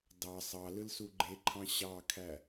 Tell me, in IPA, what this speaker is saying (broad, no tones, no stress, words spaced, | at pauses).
dɑ sˤɑlɯlsu ɡ͡ǃeǃʰɑ̃ ɕɑkʰæ